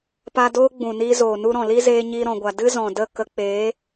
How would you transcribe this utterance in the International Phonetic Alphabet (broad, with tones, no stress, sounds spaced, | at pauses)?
p a˧ d oː˦ ɡ͡b ũ˨ n iː˧ z oː˨ n u˧ ɾ ɔ̃˨ l i˦ z eː˧ ɲ iː˧ ɾ ɔ̃˨ ɡʷ a˨ d ɨ˦ z ɔ̃˨ d ə˦˨ k ə˧ k͡p eː˨˦